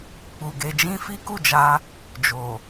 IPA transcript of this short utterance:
k͡pu˨ɡe˧d͡ʒĩ˦ fi˦ku˦˨d͡ʒa˧ | d͡ʒo˨

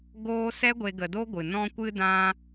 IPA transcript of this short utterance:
ɡoː˧ sɛ˦ɡʷe˧ ɡə˧do˦ɡʷɨ˨ nɔ̃˧kʷɨ˧dã˧

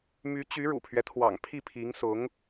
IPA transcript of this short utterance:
my˧˥t͡ɕy˧˥ɻṵ˨˩pʰɥɛ˦ t̪ʰwɑ̰˨˩ŋpʰi˥˩pʰi˧˥ŋ sʊ˧˥ŋ

